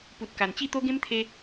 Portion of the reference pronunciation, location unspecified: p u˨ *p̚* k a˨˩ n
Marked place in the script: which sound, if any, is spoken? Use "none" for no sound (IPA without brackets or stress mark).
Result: t̚